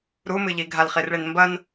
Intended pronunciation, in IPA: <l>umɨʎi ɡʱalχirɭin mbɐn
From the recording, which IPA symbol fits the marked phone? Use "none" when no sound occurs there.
ɾ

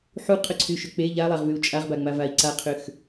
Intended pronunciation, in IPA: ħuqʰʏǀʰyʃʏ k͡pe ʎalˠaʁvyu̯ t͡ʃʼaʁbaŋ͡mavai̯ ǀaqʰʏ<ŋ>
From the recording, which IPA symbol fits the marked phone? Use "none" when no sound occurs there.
x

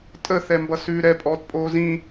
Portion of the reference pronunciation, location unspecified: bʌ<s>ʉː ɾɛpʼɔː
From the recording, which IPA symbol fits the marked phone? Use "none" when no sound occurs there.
s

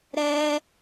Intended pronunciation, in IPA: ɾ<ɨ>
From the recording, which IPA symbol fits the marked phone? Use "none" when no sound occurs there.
ɛ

